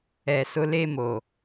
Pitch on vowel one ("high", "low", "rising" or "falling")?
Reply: low